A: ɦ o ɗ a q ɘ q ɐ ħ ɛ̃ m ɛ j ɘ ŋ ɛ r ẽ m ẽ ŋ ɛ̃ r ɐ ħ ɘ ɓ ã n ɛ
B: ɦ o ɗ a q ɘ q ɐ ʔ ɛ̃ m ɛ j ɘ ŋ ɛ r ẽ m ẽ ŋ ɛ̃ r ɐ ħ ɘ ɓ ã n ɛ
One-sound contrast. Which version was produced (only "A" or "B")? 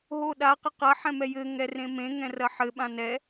A